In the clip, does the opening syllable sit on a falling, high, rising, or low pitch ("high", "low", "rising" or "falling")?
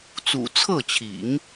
low